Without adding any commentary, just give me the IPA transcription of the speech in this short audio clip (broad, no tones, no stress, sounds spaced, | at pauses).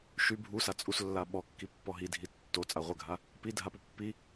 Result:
ʃ y bʱ u s a t͡sʼ u s lː a ɓ ɔ kː i pː ɔ ɦ i dʱ i tː o t͡sʼ a ʁʷ ə ɡʱ a | p i dʱ a p u pː i